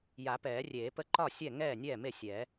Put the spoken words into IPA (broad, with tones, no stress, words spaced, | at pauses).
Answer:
ja˨˩˦pɛː˨˩˦rʲeː˨˩˦pə˥˩ ǃɒ˥˩sʲɛ˥˩ ŋɛː˥˩nʲɛː˥˩me˥˩ sʲɛː˨˩˦